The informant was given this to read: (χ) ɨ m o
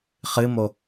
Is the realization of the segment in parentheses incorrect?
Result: no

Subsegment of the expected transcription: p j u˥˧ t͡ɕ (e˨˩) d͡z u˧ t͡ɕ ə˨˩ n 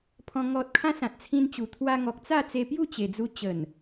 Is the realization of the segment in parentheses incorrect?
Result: no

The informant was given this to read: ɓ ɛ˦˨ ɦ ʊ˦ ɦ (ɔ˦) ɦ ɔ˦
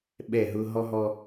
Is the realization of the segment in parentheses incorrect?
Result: no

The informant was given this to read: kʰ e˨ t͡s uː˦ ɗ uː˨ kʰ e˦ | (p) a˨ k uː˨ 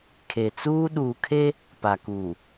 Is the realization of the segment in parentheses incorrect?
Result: no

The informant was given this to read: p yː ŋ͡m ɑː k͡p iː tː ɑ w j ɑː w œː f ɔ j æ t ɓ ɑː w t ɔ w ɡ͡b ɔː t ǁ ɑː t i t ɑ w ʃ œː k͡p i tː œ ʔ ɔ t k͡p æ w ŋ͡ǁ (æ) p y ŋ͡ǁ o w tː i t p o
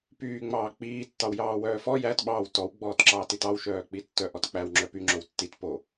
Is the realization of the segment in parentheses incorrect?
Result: yes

